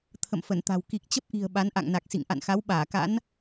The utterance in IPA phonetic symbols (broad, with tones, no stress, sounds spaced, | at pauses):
t̪ʰ ə̰˧˨ m f ə˧˩ n t̪ a̤˨˩ w k i˨˩ k̚ t͡ɕ ə˦˥ p̚ ʔ i̤˨˩ ə̯ ɓ a˨˦ n ʔ a̰˧˨ ŋ n a˨˩ k̚ s ḭ˧˨ ŋ ʔ a̰˧˨ n x a˨˦ w ɓ aː˧˩ k a̰˧˥ n